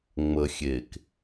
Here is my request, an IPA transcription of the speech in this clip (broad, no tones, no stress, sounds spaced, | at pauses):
ŋ͡m ə xʲ e k